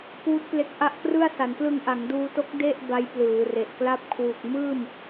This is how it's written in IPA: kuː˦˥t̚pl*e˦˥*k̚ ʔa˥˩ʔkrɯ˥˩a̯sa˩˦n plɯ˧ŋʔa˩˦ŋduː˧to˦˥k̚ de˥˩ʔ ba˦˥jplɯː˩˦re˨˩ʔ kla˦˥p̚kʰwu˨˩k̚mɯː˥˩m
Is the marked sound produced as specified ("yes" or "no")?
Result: yes